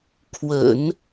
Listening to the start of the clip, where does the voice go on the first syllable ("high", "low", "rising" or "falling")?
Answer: low